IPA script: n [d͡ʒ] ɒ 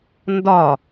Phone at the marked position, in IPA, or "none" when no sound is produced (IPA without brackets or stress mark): d